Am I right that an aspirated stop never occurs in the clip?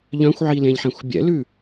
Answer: yes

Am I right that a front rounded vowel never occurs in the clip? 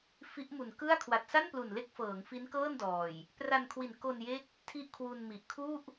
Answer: yes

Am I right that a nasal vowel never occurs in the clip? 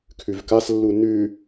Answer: yes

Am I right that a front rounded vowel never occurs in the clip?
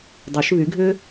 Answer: no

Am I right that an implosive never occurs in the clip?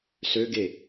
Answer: yes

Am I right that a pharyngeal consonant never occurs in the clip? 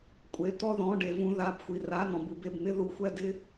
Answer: yes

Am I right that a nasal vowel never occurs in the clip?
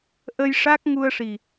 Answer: yes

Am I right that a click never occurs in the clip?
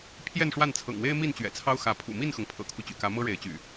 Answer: yes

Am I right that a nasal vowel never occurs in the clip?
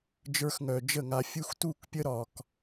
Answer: yes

